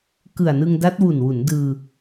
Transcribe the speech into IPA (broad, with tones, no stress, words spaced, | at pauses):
kɯ˨˩a̯nɯ˧ŋda˦˥t̚ wu˨˩nwu˩˦n dɯː˧